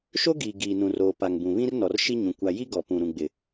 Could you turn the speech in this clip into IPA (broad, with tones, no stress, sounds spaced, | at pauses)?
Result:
ʃ o˦ ɡ iː˨ ɡ iː˨ n ũ˨ r oː˨ p a˨ ŋ b ũ˨ β ĩ˦ r n ɔ˨ r ʃ i˦ ɲ ũ˨ kʷ a˨ j i˦ ɡ ɔ˨ p ũ˨ ɾ ũ˨ ɡ͡b ɪ˨